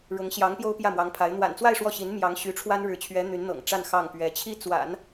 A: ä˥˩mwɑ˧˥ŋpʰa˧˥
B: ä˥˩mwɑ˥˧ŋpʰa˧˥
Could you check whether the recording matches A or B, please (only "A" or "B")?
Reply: A